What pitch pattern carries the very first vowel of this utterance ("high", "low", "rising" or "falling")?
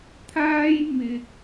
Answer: high